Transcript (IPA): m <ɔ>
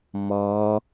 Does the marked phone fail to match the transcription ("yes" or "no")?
yes